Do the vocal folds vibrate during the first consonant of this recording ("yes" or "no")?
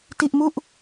no